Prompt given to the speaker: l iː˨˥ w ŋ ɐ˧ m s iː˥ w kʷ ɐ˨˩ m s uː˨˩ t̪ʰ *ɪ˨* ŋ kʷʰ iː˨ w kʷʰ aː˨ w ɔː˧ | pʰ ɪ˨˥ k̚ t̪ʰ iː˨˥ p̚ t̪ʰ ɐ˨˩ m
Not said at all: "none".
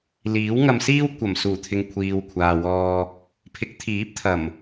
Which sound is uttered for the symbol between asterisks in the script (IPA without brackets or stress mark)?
ɪ˨